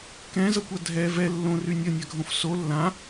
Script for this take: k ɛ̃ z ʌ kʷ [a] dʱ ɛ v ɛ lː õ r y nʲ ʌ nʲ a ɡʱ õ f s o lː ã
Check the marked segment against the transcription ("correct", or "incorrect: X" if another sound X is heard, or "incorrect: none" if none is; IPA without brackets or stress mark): correct